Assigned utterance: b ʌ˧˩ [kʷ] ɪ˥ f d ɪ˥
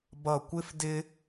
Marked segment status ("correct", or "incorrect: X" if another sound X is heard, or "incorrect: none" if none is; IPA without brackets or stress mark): correct